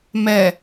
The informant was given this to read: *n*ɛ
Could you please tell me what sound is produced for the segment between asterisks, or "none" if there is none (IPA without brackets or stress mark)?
m